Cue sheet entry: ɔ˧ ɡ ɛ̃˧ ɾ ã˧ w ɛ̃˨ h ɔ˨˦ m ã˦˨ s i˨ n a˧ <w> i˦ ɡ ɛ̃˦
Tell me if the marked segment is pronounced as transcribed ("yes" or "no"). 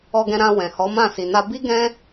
no